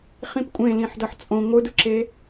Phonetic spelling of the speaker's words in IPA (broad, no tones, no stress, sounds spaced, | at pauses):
χ ĩ p kʷʼ ẽ l ĩ ħ d ʌ ħ t͡sʼ õ ŋʷ ɯ d ɯ ǁ e